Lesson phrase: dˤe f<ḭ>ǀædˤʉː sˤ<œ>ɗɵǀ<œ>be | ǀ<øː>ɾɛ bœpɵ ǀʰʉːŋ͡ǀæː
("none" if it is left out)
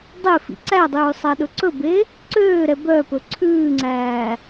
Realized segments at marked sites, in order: ḭ, æ, ɵ, øː

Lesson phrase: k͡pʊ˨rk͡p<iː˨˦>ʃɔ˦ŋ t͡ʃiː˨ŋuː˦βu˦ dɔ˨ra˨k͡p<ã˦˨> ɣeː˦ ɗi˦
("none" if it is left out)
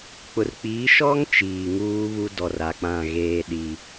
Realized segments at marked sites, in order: iː˨˦, ã˦˨

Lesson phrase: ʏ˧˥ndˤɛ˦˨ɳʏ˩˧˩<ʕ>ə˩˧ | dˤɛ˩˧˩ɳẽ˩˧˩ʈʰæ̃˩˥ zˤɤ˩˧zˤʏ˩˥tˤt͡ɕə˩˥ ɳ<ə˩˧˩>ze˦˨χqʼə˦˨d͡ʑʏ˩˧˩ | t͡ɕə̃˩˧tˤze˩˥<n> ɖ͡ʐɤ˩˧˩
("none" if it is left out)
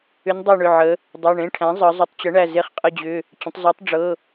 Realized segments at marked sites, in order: ʕ, æ˩˧˩, tˤ

